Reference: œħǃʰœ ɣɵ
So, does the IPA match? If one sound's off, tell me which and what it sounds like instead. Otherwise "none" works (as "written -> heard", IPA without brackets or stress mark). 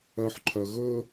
none